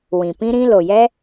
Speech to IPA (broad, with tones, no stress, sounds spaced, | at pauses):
w ĩ˨ p ĩ˦ ɾ ĩ˦ l o˨ j ɛ˦